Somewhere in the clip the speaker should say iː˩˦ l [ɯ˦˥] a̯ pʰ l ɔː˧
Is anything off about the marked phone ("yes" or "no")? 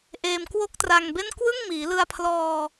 yes